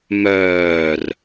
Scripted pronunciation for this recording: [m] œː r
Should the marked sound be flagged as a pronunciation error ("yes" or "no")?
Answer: no